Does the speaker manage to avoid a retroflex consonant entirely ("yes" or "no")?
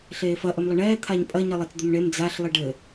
no